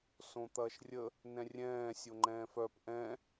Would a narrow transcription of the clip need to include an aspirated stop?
no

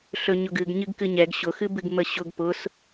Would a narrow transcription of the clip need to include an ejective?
no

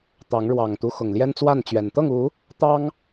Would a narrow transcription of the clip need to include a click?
no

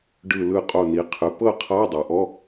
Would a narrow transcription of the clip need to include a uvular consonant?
yes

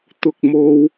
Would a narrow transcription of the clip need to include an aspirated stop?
no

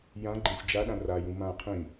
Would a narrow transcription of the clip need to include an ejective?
no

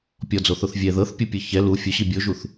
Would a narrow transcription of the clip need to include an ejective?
no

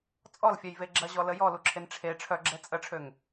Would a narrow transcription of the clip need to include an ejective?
yes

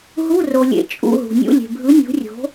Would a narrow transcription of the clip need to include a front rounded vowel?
no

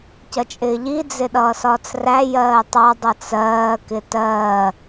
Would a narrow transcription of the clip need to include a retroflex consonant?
no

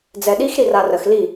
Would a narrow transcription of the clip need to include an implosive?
yes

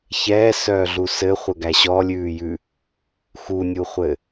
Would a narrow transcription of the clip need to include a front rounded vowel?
yes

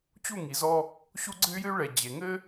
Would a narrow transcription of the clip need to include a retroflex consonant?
yes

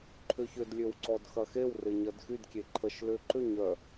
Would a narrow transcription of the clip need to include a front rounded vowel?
yes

